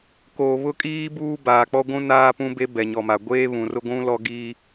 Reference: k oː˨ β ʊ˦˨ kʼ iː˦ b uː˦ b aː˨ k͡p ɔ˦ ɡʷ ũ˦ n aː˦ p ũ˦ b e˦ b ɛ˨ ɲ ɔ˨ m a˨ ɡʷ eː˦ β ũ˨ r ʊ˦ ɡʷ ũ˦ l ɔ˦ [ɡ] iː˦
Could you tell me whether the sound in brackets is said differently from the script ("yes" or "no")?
no